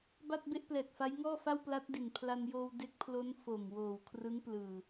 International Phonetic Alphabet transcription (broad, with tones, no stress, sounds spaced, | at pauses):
b a˥˩ t̚ b e˥˩ ʔ p l ɛː˨˩ k̚ f a˦˥ j ŋ ɔː˥˩ f a˥˩ w p l a˦˥ t̚ d i˨˩ n pʰ l a˧ n j oː˧ w d e˦˥ k̚ pʰ l o˦˥ n f o˨˩ m w oː˨˩ w kʰ r ɯ˦˥ ŋ p l ɯː˨˩